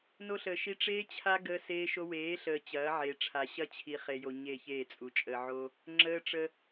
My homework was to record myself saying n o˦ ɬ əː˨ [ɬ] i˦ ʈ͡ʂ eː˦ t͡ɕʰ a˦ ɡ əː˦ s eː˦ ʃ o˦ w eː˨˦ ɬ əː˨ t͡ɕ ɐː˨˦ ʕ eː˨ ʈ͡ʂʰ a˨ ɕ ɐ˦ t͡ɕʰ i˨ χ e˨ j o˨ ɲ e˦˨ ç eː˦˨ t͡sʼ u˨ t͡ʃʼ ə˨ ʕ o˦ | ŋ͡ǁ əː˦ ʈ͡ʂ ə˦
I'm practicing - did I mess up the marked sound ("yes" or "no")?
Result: yes